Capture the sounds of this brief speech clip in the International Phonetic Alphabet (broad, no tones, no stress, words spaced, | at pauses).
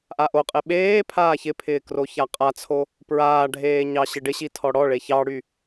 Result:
ʔaʔoqʼe ɓeː pʰaːçɪpʰɪː kroçaqʼat͡sʰo | pɹaːɖʱeː ɲɑɕɪɖɪɕi tʰɔɽɔɭe çɑɽy